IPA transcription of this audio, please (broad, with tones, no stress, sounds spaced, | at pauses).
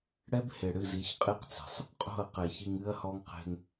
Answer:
ɽ ɛ˦ b h e˨ ɽ ɨ˦˨ z i˨˦ ç qʼ e˦ q t͡s e̤˨ sˤ | qʼ o̤˦˨ ɐ̯ q ɛ˨ ç i˧ ŋ ɨ˦ ɐ̯ h ɔ˦ ŋ q e̤˧ ŋ